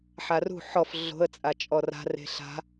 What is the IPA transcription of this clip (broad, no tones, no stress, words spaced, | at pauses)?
ħarṳ ħɔf ɮo̤ə̯ t͡sʼat͡ʃʼɔra̤ re̤ɬa̤